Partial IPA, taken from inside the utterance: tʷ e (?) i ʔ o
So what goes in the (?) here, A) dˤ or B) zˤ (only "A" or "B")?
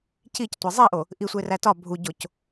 B